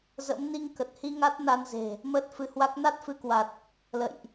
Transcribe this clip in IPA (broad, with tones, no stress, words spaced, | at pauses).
zə̰˧˥m ni˧ŋkə˨˩t̚hi˧ ŋa˦˥t̚na˧nze̤˨˩ | məː˦˥t̚fɨ˨˦hwa˦˥k̚ na˦˥t̚fɨ˨˦kwa˨˩t̚ | lə̰˧˨jʔ